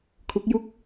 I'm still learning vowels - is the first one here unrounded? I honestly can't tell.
no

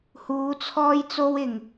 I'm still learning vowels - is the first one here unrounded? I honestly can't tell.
no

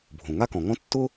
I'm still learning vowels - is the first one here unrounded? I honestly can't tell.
no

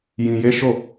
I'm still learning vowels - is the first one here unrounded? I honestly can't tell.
yes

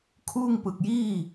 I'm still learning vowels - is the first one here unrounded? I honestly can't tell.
no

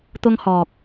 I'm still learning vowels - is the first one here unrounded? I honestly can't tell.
no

